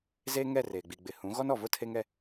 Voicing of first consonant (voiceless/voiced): voiced